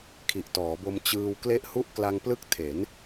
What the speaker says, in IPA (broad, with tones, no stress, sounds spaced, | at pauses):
kʰ i˨˩ ʔ t ɔː˩˦ b o˧ m t͡ɕ ɯː˧ w k l e˦˥ ʔ h u˥˩ ʔ k l a˧ ŋ p l ɯ˦˥ k̚ tʰ e˩˦ n